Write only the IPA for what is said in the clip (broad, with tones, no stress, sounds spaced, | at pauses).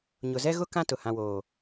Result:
ɲ ʊ˨ z ɛ˦ ɣ ʊ˦ k ã˦ t ʊ˨ h ã˨ w oː˨